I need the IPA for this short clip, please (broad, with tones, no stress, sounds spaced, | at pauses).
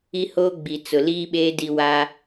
i˦ h oː˦ ɡ͡b i˨ t͡s ʊ˨ l iː˦ ɓ eː˦ d i˦ w a˦